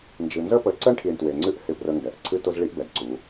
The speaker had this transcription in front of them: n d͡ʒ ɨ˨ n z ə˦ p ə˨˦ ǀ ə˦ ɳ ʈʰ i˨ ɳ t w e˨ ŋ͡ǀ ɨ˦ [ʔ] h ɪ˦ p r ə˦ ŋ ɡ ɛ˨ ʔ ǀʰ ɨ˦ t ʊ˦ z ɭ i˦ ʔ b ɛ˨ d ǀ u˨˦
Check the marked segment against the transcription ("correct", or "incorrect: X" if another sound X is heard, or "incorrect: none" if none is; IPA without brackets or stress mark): correct